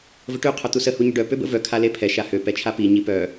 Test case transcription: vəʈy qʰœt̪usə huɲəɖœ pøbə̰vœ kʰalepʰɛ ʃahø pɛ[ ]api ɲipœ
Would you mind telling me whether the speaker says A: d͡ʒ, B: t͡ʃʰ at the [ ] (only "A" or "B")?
B